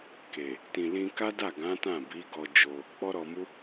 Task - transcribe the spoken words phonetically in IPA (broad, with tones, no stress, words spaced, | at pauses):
ke˨ | tĩ˨lĩ˧ka˦da˦˨ ɡã˨˦ tã˦˨bi˨˦ɡɔ˧d͡ʒo˧ | k͡pɔ˦ɾɔ˧ mu˦